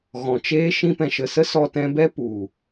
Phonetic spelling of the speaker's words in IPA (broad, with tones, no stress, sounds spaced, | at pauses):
ɣ ɔ̃˨ t͡ʃ eː˦ ʃ ĩ˧ p ɛ̃˨ ʃ ə˨ s ə˦ s ɔ˧ t ɛ̃˧ b ɛ˦ p u˨